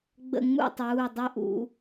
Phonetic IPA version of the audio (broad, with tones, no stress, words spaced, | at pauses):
ɡ͡bə̰˦˨ ŋ͡mṵ˦˨tˤuː˩˧˩dˤɵ˦˨ʔṵ˧˩˧